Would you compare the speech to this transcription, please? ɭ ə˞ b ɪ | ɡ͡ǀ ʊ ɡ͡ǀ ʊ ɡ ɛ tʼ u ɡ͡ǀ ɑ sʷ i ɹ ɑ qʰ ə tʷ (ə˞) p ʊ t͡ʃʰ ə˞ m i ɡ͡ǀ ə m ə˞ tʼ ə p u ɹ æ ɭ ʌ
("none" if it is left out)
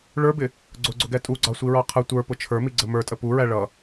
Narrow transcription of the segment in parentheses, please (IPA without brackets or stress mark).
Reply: ə˞